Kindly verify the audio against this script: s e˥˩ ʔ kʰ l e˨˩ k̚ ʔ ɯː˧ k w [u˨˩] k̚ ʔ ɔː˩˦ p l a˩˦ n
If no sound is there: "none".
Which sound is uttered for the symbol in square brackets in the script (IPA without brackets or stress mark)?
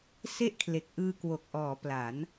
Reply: o˨˩